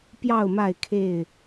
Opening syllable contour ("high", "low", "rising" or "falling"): falling